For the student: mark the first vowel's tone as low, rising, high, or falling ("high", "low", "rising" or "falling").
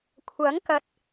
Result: rising